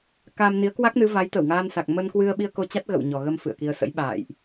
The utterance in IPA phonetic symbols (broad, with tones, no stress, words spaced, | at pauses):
ka˧m ni˨˦ə̯kwa˦˥k̚nɨ˨˦ va˨˦jt̪ə˧˩wŋaː˧nsa˨˩k̚ mə˧nkwɨ˧ə̯ɓi˧ə̯ ko˧t͡ɕa˦˥t̚ ɣə̰˧˨wɲɔ˨˩ɣə˧m fɨ̰˧˨ə̯ki˧ə̯ sə̰˧˥j ɓa̰ː˧˨jʔ